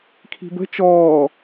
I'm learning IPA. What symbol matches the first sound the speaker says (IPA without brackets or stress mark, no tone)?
kʰ